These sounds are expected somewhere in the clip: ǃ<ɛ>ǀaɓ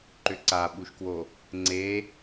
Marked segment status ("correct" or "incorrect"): incorrect